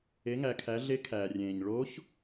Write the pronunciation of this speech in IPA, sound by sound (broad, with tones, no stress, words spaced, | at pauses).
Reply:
e˩˧ŋæ˩kʰæ˩˧ ɮe˧˥kʰæː˩rʲẽː˩ɲ ɭo˧˥ç